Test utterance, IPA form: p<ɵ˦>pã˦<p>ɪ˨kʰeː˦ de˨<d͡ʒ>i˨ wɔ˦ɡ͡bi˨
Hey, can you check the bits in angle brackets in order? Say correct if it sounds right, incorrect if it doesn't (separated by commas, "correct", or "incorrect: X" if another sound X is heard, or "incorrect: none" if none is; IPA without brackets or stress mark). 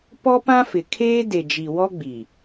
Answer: incorrect: ɔ˦, incorrect: f, correct